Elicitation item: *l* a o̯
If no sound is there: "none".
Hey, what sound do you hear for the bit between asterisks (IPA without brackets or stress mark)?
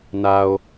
n